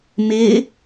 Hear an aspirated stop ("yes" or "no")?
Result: no